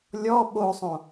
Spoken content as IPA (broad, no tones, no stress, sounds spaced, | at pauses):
lʲ ɔ ɓ o sˤ õ